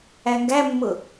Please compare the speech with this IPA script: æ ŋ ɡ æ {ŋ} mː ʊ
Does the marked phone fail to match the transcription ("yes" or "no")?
yes